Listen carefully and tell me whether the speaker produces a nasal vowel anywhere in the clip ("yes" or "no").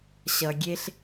no